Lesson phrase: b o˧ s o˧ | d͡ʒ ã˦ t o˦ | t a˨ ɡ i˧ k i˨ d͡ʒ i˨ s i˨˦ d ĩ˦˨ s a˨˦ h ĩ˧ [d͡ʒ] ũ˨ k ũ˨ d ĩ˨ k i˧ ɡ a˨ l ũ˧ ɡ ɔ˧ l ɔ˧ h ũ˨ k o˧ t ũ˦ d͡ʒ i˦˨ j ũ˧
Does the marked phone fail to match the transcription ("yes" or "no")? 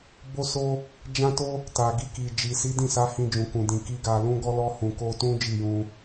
no